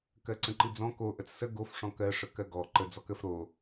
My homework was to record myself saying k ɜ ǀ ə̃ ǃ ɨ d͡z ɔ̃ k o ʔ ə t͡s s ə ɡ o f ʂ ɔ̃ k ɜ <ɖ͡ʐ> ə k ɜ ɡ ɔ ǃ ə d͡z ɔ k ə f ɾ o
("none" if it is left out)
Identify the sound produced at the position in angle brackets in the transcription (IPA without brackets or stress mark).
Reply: ʂ